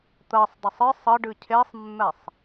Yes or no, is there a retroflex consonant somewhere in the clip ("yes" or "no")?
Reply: yes